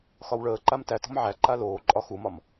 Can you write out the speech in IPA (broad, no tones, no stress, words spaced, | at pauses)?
xɒwɭəːǃam tætɔ̤m ʕæ ǃaloːǃʼɒ xumɒm